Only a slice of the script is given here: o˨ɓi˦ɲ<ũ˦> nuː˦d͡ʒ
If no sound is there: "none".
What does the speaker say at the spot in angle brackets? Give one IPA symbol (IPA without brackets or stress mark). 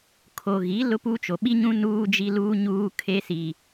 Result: ũ˦